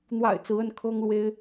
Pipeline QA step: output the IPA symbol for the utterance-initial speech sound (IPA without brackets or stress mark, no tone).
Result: n̪